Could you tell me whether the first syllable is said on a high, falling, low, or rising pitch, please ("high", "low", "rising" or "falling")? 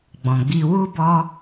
low